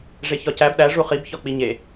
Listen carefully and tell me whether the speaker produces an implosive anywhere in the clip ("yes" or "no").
yes